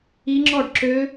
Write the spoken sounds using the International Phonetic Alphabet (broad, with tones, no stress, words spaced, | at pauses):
i˦˥ŋ͡ǁɔ˥˧ɖ ǁø˦˥